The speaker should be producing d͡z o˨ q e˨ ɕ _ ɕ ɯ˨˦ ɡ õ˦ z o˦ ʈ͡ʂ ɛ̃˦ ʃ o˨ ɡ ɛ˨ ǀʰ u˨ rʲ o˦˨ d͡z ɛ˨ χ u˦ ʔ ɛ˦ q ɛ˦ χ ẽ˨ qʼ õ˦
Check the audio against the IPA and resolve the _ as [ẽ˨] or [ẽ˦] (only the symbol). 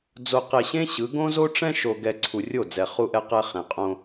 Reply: ẽ˦